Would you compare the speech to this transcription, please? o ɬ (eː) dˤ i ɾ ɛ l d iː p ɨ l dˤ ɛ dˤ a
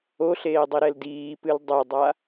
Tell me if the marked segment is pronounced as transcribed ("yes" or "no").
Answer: yes